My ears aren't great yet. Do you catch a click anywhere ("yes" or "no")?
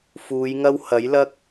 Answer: no